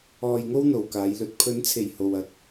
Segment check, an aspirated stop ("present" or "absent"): present